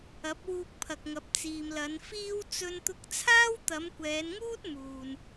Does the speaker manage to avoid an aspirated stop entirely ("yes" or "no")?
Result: no